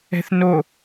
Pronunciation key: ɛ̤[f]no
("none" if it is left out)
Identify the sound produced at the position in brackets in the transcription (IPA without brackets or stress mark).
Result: θ